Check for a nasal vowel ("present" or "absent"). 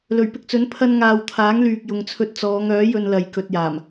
absent